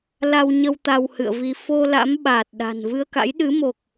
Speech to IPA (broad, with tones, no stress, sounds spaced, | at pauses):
l a˧ w ɲ ə˧ w t̪ a˧ w h ɨ̰˧˨ ə̯ v i˧ f o˧ l a̰˧˥ m ɓ aː˨˩ t̚ ɗ a̤˨˩ n v ɨ˧ ə̯ k a̰˧˥ j ɗ ɨ˨˦ m o˨˩ k̚